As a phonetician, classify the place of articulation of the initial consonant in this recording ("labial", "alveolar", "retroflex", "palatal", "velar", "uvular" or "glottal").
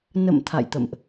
alveolar